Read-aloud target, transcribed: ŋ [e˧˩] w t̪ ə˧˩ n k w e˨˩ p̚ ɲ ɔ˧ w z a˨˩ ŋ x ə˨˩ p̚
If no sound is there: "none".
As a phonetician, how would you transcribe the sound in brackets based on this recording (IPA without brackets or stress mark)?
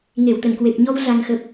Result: e˧˩